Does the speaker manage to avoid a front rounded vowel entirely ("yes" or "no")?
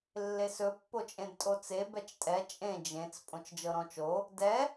yes